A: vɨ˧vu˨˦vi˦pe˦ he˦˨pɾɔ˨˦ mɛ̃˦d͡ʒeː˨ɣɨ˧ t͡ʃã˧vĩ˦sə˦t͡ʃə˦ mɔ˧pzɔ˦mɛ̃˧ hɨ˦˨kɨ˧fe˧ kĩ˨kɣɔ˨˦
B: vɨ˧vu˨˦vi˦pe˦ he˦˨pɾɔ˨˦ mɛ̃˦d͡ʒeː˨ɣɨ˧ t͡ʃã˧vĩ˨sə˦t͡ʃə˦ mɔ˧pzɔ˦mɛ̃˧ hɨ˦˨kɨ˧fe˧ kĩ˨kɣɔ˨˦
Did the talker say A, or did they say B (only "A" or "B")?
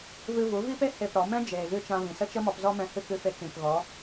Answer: B